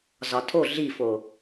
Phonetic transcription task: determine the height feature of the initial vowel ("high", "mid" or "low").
low